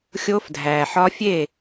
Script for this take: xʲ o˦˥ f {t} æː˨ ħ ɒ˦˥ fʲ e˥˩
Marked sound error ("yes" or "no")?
yes